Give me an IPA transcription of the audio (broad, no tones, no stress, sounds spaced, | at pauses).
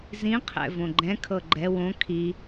z ĩ qʰ ɛ̰ v õ ɡ͡ǃ ɛ̃ kʰ ɤ ɡ͡ǃ ɛ w õ kʰ i